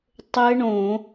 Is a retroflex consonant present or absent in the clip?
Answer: present